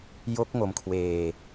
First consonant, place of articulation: palatal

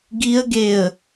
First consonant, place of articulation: velar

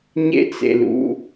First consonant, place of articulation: palatal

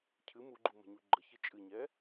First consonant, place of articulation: palatal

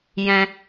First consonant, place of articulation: palatal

